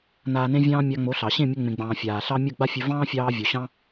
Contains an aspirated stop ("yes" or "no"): no